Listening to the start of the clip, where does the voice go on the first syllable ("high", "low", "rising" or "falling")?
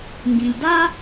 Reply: low